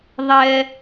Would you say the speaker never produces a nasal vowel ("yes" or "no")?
yes